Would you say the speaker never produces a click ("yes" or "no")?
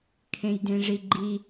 no